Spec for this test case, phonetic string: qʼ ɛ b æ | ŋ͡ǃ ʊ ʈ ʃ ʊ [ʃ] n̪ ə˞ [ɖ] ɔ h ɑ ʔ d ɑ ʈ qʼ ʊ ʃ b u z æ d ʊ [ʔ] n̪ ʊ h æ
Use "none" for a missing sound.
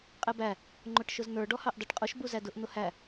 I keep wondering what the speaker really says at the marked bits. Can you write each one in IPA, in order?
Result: z, ɖ, ʔ

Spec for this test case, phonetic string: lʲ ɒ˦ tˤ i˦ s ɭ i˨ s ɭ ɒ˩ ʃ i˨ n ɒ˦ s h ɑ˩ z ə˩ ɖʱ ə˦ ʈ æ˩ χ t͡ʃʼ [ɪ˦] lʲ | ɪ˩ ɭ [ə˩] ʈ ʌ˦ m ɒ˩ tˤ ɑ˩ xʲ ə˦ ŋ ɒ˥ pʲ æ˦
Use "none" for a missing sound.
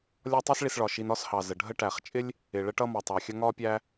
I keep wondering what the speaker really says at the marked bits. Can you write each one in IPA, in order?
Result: ɪ˥, ə˦

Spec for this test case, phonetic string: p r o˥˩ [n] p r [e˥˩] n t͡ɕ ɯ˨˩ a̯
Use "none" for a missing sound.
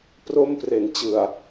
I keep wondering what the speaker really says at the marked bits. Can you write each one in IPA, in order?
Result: m, e˨˩

